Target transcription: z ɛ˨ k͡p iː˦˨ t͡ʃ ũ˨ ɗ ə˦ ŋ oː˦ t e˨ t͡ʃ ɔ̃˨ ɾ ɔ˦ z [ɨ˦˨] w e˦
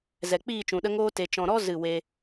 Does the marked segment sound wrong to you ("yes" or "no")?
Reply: no